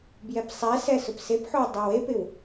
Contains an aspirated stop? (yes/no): no